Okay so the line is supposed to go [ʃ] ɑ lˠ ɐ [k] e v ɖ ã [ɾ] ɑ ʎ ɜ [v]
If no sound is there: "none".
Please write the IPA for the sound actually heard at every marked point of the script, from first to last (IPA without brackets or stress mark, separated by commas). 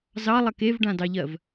z, k, d, v